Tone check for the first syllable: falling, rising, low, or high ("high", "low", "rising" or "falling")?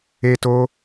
high